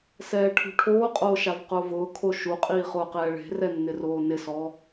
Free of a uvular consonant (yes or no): no